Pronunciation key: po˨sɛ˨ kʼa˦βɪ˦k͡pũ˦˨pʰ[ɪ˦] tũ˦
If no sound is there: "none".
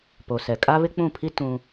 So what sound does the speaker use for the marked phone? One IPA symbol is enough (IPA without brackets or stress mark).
i˦